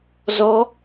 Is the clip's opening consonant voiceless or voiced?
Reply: voiced